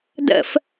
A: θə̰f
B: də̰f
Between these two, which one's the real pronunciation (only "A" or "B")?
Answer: B